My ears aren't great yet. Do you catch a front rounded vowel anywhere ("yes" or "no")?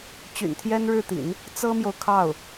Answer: yes